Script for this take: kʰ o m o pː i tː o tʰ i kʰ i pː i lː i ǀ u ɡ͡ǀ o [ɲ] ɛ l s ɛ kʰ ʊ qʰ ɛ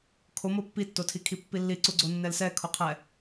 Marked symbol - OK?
no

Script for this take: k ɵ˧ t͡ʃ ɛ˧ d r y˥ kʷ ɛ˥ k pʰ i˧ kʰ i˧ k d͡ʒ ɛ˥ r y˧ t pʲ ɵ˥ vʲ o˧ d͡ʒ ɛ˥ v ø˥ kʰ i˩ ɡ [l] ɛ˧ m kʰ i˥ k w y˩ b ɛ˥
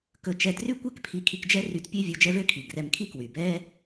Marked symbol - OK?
no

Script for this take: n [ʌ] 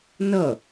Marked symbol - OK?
yes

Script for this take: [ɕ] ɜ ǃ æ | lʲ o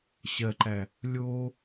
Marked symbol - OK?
yes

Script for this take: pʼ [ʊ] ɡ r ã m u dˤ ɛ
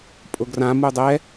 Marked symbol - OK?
yes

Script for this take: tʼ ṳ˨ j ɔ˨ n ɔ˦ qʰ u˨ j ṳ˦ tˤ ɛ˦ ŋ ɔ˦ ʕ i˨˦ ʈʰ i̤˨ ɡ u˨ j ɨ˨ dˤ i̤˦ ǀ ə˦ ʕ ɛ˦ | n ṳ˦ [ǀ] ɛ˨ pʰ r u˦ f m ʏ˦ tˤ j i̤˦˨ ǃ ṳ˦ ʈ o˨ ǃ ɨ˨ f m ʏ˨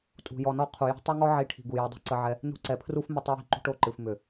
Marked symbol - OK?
yes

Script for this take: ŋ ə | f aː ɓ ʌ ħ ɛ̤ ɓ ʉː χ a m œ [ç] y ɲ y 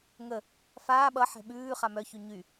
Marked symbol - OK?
yes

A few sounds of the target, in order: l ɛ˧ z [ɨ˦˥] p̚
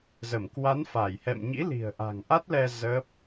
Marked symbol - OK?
no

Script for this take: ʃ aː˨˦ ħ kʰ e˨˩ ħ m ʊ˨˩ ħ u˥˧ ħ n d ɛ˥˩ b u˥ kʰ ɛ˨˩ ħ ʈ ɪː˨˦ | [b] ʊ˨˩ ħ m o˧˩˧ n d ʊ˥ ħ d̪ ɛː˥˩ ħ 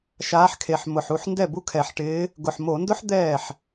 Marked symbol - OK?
no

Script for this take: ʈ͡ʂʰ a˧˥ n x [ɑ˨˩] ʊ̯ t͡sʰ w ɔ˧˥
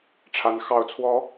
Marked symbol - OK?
yes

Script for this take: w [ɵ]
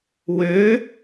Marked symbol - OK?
no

